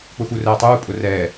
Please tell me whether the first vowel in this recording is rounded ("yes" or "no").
yes